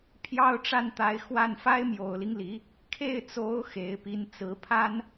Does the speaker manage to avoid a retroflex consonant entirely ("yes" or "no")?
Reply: no